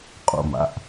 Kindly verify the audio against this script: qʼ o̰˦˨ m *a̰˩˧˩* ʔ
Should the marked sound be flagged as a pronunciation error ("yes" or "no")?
no